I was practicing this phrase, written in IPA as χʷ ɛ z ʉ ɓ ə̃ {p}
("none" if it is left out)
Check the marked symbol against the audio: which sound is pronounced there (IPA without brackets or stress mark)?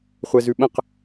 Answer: q